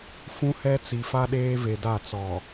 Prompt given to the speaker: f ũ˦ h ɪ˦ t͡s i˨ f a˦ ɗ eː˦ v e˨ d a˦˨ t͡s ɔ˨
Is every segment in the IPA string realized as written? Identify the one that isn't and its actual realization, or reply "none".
ɪ˦ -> ɛ˦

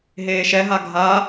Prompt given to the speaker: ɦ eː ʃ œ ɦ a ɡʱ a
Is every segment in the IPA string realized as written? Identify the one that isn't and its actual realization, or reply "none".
œ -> ɛ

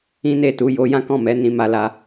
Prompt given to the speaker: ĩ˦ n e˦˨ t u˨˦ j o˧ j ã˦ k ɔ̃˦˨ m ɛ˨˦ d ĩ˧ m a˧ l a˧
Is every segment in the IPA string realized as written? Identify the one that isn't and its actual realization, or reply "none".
d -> n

